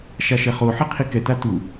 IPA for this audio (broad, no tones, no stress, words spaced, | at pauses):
ʃaʃɛχoħi qʰikɛta tu